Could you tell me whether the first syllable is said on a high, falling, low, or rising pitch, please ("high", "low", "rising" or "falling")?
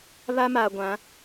high